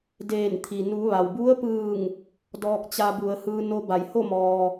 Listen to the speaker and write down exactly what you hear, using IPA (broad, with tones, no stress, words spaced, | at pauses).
deː˧˩nt̪ʰi˩ nuː˩˧ʋa˩wbu˧˥ə̯pɯː˧˩ŋ | dɔː˧k̚t͡ɕa˧bu˩˧ə̯ hɯː˧no˧ba˩˧jho˥˨ mɔː˩